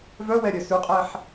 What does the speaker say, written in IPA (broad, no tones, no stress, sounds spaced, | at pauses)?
v œ w ɛ ɾʲ œ s ʉ qʼ ɛ ħ